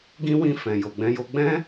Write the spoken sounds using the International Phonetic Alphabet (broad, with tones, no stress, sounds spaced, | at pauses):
ɡ ĩ˦ w ĩ˦˨ f ɛ̃˨ j o˨ ɡ͡b ɛ̃˧ j o˧ ɡ͡b ɛ̃˦